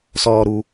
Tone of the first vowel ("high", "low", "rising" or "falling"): low